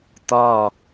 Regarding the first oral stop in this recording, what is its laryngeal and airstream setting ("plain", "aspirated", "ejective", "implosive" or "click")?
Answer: plain